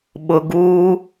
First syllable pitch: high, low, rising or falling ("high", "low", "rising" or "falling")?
low